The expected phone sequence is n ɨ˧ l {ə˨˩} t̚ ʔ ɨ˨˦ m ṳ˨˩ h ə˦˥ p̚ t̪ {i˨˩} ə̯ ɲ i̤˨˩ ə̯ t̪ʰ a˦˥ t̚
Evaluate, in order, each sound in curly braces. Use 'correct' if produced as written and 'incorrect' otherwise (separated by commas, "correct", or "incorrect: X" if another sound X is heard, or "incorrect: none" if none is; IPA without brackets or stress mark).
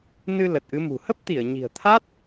correct, incorrect: i˧˩